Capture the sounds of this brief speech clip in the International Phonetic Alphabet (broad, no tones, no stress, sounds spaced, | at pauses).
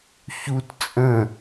ç u t t͡sʼ ə̃